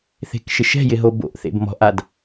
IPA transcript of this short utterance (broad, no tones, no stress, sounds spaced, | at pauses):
θ e̤ k ʃ ɪ ʃ ɛ̤ j ɪ ɦ o b o̰ ʔ θ ḛ b m ɔ̤ ʔ a d